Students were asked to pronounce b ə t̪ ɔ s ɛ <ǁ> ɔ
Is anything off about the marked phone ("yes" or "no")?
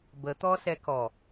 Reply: yes